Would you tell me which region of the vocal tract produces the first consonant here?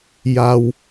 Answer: palate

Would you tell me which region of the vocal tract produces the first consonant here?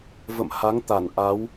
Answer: lips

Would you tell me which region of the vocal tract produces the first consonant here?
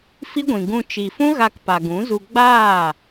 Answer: lips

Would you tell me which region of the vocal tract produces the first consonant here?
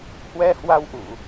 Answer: throat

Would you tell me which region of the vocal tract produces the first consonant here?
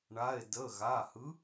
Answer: retroflex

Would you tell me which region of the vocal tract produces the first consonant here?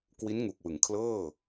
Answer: velum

